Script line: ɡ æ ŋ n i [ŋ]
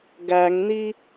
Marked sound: incorrect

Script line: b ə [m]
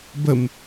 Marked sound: correct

